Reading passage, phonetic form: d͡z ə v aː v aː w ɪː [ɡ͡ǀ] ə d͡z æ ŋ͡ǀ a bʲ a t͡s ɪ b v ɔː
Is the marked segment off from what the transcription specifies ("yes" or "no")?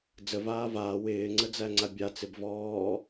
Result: yes